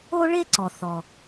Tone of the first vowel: high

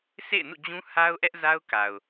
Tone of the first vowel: falling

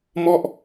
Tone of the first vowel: falling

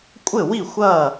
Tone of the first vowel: falling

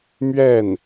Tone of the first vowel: falling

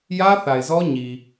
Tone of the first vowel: high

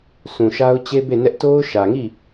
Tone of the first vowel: low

